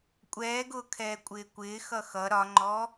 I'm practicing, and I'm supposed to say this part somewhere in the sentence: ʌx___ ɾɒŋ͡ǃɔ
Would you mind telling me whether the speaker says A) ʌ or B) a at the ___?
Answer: A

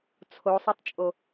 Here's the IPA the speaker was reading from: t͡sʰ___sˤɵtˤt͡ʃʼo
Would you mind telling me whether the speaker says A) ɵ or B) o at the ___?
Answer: B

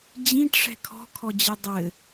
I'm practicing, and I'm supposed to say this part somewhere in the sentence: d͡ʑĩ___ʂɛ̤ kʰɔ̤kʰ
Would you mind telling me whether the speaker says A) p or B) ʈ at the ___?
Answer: B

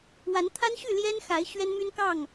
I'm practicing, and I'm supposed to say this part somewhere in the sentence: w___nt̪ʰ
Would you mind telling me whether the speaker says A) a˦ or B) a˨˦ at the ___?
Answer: B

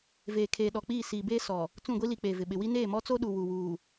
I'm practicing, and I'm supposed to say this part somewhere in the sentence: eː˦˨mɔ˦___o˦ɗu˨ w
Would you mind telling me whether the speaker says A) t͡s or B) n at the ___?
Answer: A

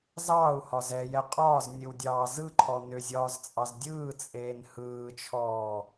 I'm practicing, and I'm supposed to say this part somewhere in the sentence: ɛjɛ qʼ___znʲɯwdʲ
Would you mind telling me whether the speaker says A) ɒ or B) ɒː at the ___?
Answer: B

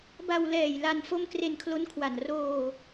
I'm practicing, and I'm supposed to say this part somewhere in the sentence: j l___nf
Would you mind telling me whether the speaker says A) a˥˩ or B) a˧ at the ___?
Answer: B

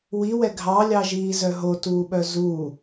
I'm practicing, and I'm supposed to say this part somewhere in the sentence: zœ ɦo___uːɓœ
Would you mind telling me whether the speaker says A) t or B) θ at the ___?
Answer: A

